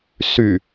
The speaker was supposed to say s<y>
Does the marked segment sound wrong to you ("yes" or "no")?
no